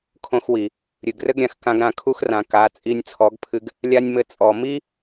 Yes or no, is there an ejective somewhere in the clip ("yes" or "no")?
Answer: yes